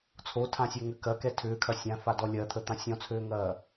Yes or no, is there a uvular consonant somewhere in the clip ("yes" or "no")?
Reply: no